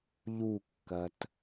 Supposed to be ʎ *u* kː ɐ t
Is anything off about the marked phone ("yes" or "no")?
no